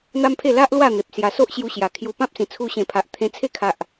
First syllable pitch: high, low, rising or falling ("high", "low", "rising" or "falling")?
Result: high